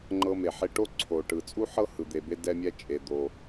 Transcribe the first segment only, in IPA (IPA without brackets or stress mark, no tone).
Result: ŋ͡ǃ